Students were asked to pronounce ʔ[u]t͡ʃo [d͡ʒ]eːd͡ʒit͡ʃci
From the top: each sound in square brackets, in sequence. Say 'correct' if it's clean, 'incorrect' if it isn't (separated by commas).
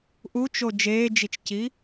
correct, correct